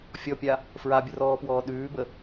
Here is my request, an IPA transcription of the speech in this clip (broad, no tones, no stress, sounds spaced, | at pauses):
fʲ ɔ pʲ a | f ɹ a bʲ ə r ɔː p w ɔː ɗ ʉː b ə